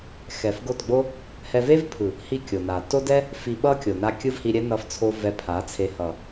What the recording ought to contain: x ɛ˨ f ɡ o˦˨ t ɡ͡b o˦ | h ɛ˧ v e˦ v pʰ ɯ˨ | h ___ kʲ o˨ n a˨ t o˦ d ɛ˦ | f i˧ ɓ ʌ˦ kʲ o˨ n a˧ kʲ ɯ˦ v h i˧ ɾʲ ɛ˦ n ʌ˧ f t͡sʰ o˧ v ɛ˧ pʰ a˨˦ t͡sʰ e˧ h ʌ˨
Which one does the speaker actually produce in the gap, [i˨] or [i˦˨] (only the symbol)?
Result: i˦˨